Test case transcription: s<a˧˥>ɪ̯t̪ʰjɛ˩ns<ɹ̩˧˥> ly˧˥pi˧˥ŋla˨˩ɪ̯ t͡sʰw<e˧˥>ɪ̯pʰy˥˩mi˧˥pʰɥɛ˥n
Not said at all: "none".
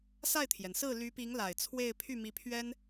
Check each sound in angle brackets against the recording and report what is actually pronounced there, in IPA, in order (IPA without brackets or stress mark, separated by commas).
a˥˩, ɹ̩˥˩, e˥˧